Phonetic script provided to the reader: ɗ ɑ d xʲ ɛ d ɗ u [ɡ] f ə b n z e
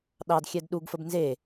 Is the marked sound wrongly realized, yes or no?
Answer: no